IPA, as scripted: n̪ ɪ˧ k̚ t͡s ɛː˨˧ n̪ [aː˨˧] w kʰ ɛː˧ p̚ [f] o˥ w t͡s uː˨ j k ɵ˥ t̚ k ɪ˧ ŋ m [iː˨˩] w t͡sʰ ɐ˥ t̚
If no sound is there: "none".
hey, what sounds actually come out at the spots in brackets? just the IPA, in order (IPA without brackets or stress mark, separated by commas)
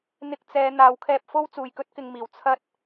aː˨˧, f, iː˨˩